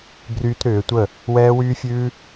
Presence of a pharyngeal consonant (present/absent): absent